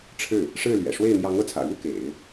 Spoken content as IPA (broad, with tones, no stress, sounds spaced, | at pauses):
ʈ͡ʂʰ ɻ̩˥˩ | ʂ ɻ̩˥˩ l ɥ ɛ̰˨˩ ʂ w e˥˩ ɪ̯ n̪ j ɑ˧˥ ŋ ɤ˥˩ t͡sʰ ä̰˨˩ ɻ u˥ k ḛ˨˩˦ ɪ̯